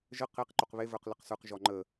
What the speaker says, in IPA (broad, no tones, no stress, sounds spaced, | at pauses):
ʒ ə q e q ǃ o q β e v ə˞ q l ə q s ə˞ q ʒ ɔ ŋ͡ǃ ə